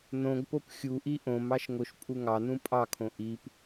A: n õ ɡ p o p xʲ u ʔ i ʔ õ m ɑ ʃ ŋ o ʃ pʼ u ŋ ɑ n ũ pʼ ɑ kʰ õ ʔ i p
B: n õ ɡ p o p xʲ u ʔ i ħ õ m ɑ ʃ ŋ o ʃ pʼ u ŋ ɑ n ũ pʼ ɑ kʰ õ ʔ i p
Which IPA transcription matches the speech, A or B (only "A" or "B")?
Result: A